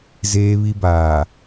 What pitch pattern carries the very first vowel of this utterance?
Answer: high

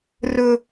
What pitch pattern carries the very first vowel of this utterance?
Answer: low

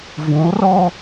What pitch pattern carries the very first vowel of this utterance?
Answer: rising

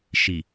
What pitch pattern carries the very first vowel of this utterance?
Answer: low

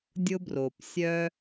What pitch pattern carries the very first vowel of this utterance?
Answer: high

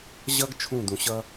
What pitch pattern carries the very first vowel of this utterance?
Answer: high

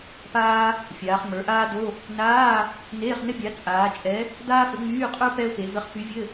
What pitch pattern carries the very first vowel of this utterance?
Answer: high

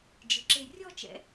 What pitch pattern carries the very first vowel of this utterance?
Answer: rising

